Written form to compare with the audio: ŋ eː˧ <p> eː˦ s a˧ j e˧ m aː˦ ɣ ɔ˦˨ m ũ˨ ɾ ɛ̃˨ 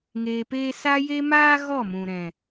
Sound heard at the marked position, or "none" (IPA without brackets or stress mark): p